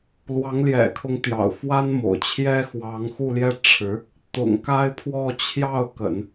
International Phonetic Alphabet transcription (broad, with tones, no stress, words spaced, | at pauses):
lwɑ˧˥ŋljɛ̰˨˩kʰʊ˧˥ŋt̪jɑ̰˨˩ʊ̯ fwa˥nmo̰˨˩ʊ̯ t͡ɕʰjɛ˥xwɑ˧˥ŋxu˥˧ljɛ˥˩ ʈ͡ʂʰɻ̩˧˥ | t̪ʊ̰˨˩ŋka˥ɪ̯pʰwɔ˥˧ t͡ɕʰjɑ˥˩ʊ̯kə̰˨˩˦n